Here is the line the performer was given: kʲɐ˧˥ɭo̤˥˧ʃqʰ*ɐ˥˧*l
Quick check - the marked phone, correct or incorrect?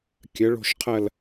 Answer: correct